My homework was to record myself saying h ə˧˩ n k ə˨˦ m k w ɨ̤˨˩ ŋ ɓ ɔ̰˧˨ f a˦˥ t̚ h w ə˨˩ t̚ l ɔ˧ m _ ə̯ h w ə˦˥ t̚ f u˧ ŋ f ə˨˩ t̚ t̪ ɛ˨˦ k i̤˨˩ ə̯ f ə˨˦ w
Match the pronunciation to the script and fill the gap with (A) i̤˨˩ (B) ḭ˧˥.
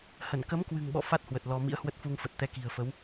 B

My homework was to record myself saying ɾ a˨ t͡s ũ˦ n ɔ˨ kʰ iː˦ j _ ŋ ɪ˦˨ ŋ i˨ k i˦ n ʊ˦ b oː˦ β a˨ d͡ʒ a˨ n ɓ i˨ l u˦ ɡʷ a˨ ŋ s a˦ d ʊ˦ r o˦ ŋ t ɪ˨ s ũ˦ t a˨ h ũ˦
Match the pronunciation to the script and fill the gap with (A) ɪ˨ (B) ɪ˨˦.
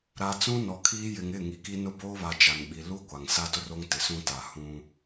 A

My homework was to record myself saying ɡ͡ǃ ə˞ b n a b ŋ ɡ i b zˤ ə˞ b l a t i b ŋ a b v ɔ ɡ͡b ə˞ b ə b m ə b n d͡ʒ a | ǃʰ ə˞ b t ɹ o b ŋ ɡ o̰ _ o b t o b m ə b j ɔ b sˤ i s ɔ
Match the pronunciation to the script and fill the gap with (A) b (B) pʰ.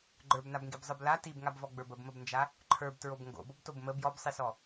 A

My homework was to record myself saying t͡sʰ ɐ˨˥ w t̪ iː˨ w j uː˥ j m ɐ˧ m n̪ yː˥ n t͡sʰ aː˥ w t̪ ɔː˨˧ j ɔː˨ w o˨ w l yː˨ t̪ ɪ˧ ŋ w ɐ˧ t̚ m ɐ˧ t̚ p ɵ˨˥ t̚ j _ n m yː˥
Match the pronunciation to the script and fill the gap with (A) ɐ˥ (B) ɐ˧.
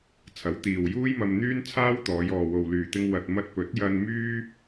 B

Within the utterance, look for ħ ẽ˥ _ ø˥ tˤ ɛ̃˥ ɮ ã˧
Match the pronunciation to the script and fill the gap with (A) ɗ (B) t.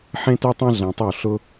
B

